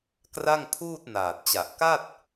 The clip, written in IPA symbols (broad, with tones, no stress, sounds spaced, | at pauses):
k r a˥˩ ŋ pʰ uː˥˩ t̚ n aː˨˩ t̚ t͡ɕ a˨˩ ʔ k a˥˩ t̚